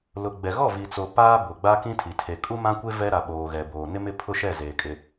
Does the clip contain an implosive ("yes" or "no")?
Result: yes